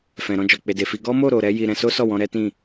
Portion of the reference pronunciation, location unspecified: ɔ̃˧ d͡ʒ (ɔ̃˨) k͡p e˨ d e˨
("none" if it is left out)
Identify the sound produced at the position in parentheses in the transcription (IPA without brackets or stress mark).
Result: ɔ˨